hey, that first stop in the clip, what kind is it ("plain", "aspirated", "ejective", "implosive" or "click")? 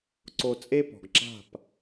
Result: click